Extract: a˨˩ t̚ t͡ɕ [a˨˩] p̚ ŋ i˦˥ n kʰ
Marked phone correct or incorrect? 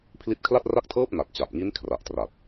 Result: correct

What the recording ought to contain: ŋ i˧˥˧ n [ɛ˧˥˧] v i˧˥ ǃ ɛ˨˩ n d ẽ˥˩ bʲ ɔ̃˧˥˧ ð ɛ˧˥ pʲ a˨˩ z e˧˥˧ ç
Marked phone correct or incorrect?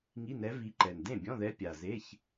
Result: incorrect: ɛ˧˥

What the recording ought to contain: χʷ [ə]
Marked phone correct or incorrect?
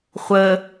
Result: correct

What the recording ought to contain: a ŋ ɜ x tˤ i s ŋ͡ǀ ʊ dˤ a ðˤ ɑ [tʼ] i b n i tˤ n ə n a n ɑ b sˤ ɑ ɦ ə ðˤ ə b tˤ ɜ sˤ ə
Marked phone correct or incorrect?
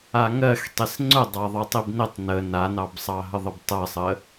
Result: incorrect: tˤ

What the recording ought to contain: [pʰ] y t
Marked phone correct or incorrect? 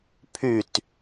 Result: correct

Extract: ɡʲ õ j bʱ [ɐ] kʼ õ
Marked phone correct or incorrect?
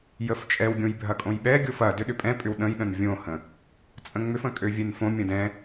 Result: correct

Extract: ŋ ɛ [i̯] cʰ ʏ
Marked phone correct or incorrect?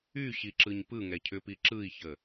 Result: incorrect: none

